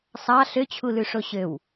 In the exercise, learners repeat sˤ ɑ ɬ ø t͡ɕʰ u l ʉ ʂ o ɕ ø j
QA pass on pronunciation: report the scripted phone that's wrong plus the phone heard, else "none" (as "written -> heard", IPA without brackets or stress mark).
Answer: j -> w